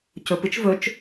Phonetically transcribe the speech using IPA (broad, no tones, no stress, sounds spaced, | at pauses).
c ɵ p ɨ t͡ʃ v ɵ t͡ʃ